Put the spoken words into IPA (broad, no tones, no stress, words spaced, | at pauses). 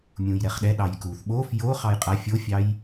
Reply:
mʲũjɾɛχɗɛ ɗɑjkuθ ɓof jo χɑjqʼa fʲofʲɑj